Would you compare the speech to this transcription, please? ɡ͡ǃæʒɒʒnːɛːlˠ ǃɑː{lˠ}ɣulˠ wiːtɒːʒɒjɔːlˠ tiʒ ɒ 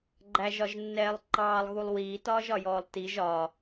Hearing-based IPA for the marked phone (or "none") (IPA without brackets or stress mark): lˠ